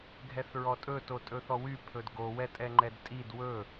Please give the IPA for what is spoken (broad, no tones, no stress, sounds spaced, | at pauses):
ɡʱ ɛ θ ɹ ɔ tʼ ɵ t o tʼ ɵ θ ɔ w y pʰ ɵ d ɡ o w ɛ tʼ ɛ ŋ͡ǃ ɛ d tʼ i d w ɵ